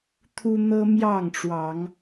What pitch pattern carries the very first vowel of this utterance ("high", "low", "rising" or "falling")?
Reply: high